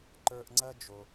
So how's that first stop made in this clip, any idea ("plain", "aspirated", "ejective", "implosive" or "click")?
click